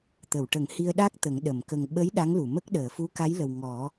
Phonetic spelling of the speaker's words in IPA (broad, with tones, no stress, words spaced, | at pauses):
t̪ə˨˩˨wʈə˨˩˦ŋ hi˧ə̯ɗa˦˥k̚ t̪ə˨˩˦ŋ ɗə˨˩˨m kə˨˩ŋ ɓə˧˥j ɗa˧˥ŋlu˨˩˨mə˦˥k̚ ɗəː˨˩˨fu˧˥ka˧˥jlə˨˩w ŋɔ˨˩˦